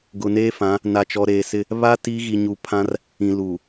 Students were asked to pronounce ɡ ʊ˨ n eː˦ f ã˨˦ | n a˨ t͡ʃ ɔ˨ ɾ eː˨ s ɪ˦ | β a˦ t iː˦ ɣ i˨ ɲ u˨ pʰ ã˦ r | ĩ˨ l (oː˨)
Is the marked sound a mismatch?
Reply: yes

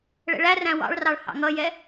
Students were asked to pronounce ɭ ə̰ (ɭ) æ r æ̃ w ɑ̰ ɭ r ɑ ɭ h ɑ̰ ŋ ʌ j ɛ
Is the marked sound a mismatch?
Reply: no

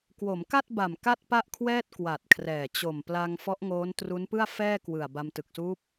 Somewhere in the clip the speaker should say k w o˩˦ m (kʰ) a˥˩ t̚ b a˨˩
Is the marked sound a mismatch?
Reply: yes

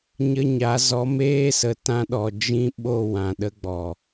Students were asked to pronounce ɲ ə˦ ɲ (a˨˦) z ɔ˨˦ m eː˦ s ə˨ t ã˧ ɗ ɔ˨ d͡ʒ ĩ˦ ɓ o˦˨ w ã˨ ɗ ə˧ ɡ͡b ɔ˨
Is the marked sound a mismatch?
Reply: no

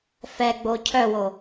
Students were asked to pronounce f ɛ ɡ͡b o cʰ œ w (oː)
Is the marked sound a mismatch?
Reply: yes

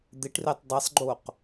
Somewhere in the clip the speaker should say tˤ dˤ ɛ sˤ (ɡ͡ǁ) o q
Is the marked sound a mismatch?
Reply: yes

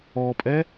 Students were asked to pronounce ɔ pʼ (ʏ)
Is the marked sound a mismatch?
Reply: yes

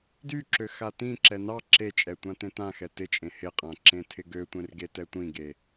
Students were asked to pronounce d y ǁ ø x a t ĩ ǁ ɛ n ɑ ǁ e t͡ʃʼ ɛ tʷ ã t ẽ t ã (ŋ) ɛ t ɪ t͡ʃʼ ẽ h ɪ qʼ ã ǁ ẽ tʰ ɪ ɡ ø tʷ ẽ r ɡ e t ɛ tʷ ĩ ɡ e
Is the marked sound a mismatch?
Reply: yes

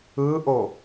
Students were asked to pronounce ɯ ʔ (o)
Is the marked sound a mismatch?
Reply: no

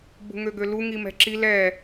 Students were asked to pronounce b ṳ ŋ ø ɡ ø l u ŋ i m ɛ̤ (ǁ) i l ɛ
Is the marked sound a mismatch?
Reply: no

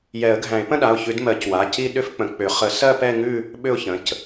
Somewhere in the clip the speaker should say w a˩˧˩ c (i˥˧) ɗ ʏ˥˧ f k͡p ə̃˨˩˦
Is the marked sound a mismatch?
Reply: no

